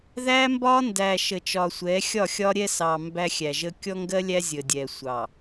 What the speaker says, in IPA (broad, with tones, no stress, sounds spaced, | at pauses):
ð æ˦ m b ɒ˦ n d æ˨ ʃ ə˨ t͡ʃ ɒ˨ sʷ ɛ˨˦ xʲ ɒ˦˨ xʲ ɒ˦ ɾʲ ɛ˦ s ɑ˨ m b æ˦ xʲ æ˨ ʒ ə˦ kʲ ɔ˦ ŋ ɡ ɜ˦ lʲ æ˦ zʲ ə˨ dʲ ɛ˨ sʷ ɑ˨